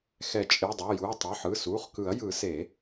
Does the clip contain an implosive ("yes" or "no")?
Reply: no